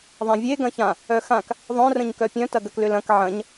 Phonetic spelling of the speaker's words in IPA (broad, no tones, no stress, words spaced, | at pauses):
ðˤãvʲe ɡɐ̃çã | œxãk | ðˤœ̃ rə̃ɲkœpʲœ̃ tɐɡɐklʏlɐ̃k ʕɐ̃ɲ